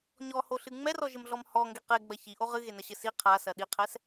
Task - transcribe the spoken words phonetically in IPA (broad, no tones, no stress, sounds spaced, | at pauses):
ɲ ɔ h o ɬ ɨ ŋ͡m ɛ r ɔ ʒ ɘ m ɮ ɔ m h ɔ ŋ ɡ e q e ɡ͡b ɐ ç i ʔ o ʁ ɨ ɣ e n ɐ ɕ ɘ s i qʰ a s ɐ ɗ i qʰ ɛ s